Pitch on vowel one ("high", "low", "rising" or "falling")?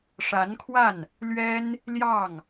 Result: rising